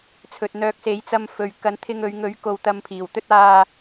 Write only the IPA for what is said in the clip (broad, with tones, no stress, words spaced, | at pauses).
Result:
t͡sʰɵ˨t̚n̪œː˨˥k̚se˨˥jt͡sɐ˧m fɵ˨ɥ kɐ˨˥nt̪ʰɪ˧ŋɵ˨˧ɥŋɵ˨˥ɥ ko˧wt̪ɐ˧mpʰiː˨˩wt̪ɵ˥t̚ aː˥